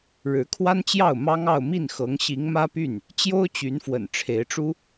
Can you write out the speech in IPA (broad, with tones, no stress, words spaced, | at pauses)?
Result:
ɻɻ̩˧˥kʰwa˥nt͡ɕjɑ˥˩ʊ̯ mɑ˥ŋɑ˥˧ʊ̯ mi˥˩nxɤ˧˥ŋ ɕi˧˥ŋmä˥py˥˩n | t͡ɕjo˥ʊ̯t͡ɕy˧˥nfwə̰˨˩n ʈ͡ʂʰe˧˥ɪ̯ʈ͡ʂu˥